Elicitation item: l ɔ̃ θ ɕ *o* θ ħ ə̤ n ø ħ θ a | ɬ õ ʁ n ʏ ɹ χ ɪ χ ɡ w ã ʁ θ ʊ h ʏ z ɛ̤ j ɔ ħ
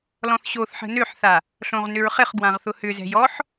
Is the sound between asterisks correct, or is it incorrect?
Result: correct